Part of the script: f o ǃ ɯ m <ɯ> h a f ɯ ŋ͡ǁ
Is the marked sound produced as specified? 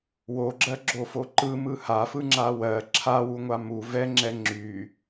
yes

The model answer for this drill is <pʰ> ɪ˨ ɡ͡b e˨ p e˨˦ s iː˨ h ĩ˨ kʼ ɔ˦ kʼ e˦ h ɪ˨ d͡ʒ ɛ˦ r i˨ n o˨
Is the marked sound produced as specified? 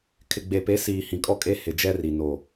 no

